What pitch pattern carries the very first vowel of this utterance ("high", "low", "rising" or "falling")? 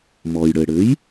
low